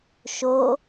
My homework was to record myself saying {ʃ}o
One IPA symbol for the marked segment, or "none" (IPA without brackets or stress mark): ʃ